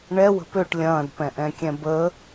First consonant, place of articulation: retroflex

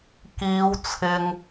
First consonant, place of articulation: velar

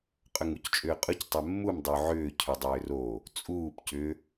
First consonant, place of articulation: uvular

